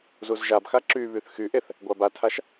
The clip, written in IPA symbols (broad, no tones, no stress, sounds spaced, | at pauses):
z u z ʒ a b x a ǁ y β y θ x y ʔ e θ | ɡʷ a b a tʰ a ʃ